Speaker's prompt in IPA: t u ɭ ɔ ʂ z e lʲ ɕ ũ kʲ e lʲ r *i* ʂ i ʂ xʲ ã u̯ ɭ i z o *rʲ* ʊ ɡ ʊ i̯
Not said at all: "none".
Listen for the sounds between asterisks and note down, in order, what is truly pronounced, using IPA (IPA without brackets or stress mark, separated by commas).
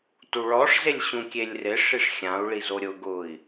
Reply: ɪ, ɾʲ